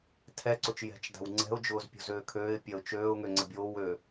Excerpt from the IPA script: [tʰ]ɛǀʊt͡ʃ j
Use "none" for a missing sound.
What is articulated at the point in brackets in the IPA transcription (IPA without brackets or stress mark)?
tʰ